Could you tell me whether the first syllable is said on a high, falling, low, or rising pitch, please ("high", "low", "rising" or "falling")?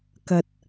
low